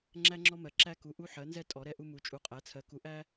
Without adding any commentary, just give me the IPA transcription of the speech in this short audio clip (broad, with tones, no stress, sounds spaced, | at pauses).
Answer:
ŋ͡ǁ æ˥ ŋ͡ǁ ɔ˥ m ɜ˩˥ ǁ æ˥ k u˩˥ ʔ u˥ ħ ɜ˩˥ n z ɛ˥ tʼ ɔ˩˥ ɾ ɛ˥ ʔ u˥ m u˩˥ t͡ʃʼ u˩˥ qʼ æ˩˥ t͡sʰ ɜ˩˥ k u˩˥ ʔ æ˥